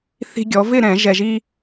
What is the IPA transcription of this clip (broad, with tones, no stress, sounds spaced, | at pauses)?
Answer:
θ i̤˧ ɡʲ ɔ˩˧ v ɪ˥˨ ɾ ɛ̃˧˩˧ ʒ ɛ˧ ʒ i˥